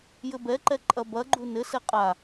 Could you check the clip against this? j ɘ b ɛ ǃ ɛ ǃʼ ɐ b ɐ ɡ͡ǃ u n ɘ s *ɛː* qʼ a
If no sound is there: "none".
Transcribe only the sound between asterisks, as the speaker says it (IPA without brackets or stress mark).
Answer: ɛ